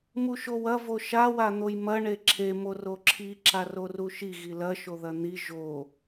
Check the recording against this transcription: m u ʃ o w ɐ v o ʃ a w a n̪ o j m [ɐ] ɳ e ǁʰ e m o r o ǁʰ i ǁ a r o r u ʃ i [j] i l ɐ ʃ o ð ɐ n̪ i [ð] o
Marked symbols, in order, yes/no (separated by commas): yes, no, no